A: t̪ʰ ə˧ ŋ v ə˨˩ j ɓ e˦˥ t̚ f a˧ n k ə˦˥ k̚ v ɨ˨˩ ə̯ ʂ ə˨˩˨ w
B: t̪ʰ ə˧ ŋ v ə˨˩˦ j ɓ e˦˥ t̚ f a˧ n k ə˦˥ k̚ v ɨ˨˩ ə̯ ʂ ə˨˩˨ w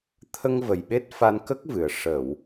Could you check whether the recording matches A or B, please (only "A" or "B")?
A